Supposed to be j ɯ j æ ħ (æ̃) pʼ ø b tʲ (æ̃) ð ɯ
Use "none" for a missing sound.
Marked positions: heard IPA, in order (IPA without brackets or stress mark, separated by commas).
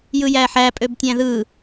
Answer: æ, æ̃